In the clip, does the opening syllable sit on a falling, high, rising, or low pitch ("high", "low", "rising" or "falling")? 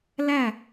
falling